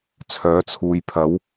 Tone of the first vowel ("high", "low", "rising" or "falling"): rising